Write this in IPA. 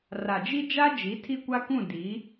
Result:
r a˨ d͡ʒ i˦ d͡ʒ a˦ d͡ʒ i˨˦ tʰ i˦ kʷ a˦ k ũ˦˨ d i˨˦

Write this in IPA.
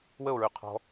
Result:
w ə o̯ ɹ y qʰ ɔ̤

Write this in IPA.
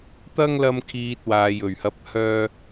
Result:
t̪ ɐ˥ ŋ l ɐ˧ m kʰ iː˨ t̚ w aː˨ j ɵ˨˩ ɥ h ɐ˨˥ p̚ h œː˧

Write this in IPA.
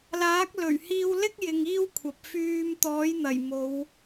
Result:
l aː˨˥ k̚ l ɵ˨˩ ɥ h iː˧ w l ɪ˥ k̚ j ɪ˨ ŋ iː˥ w kʷʰ ɐ˨ p̚ f yː˧ m t̪ ɔː˨˥ j n̪ ɐ˨˩ j m o˨˧ w

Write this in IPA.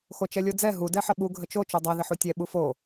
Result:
x o t͡ʃ ɛ lʲ o d͡z ɛ ɦ u d ɛ ħ ə ɓ u ɡʱ ə t͡ʃ o t͡ʃ u dˤ ɛ ð ɘ ħ u tʲ ɛ ɓ u f o

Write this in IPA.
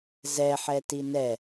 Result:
z ɛ ħ ɛ t i n ɛ

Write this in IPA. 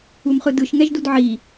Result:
u m χ ɯ d ɯ ʃ ŋ ɛ ʒ d u d ʕ i

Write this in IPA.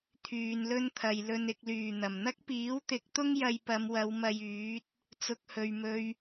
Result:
t̪ʰ yː˨ n l ɵ˥ n t̪ʰ ɐ˨ j l ɵ˨ n ɪ˨ k̚ l yː˨˩ n̪ ɐ˨˩ m n̪ ɐ˥ k̚ p iː˨˥ w t̪ ɪ˨˥ k̚ t̪ ʊ˥ ŋ j ɐ˧ j p ɐ˨˧ m w ɐ˨˧ w m ɐ˧ j yː˨˥ t̚ | t͡s ʊ˧ k̚ h ɵ˨ ɥ m ɵ˧ ɥ

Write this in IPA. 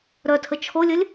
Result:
ɾ œ tʰ ə t͡ʃʰ o lʲ ə lʲ

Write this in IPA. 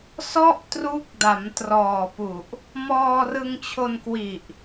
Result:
s ɔ˥˩ ʔ t r u˦˥ k̚ d a˩˦ m t r ɔː˨˩ p u˨˩ ʔ | m ɔː˧ r ɯ˧ ŋ t͡ɕʰ o˧ n k w i˨˩ ʔ

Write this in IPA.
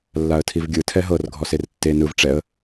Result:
lː a ə̯ tʰ i v ɡʲ ɯ tʰ ɛ ɦ ɤ r ɡʱ ɔ s e r tː e n ɯ v ʈ͡ʂ ɛ ə̯

